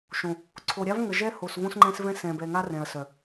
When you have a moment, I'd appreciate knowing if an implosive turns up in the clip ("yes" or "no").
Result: no